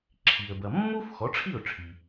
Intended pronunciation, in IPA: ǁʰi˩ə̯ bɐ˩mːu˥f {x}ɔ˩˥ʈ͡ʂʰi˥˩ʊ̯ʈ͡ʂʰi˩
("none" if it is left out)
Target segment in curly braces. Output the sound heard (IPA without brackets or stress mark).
x